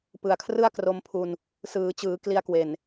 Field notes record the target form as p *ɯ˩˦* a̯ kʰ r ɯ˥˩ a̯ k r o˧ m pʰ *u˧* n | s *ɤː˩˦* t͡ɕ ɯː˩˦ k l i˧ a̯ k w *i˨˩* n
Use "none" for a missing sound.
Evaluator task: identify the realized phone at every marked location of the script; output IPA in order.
ɯ˨˩, u˧, ɯː˩˦, e˨˩

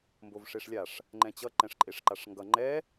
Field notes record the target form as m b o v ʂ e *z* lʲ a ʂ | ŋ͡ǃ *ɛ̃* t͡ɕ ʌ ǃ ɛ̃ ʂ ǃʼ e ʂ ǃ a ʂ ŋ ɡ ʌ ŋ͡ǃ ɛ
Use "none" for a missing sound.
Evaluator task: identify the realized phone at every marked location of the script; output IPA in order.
ʂ, ɛ̃

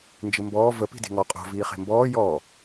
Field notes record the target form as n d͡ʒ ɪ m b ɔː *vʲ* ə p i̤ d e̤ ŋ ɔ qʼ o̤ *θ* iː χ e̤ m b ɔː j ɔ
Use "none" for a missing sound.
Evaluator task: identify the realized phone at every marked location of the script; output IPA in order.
v, v

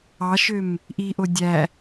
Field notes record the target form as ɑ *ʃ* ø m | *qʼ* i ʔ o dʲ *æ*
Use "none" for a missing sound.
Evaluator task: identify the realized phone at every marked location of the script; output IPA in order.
ʃ, ʔ, æ

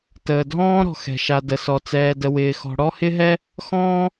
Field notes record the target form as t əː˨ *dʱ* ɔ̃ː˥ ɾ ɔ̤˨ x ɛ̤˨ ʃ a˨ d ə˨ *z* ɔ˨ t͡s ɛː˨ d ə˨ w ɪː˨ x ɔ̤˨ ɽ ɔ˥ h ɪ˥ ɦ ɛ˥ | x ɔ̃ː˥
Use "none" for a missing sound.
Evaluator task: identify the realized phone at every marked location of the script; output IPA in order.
dʱ, s

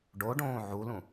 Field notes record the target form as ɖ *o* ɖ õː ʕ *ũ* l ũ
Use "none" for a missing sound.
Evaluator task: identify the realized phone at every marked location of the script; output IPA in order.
o, u

